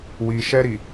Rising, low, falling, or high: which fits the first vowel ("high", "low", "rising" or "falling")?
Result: low